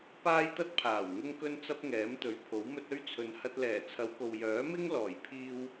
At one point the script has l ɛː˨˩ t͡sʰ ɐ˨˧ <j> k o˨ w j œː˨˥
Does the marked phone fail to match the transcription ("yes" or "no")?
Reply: yes